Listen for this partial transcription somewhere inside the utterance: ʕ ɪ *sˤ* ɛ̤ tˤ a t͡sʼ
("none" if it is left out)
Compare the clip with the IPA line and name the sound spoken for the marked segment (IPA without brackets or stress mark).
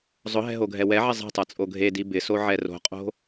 zˤ